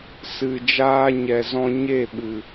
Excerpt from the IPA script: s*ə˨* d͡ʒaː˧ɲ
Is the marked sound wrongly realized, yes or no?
yes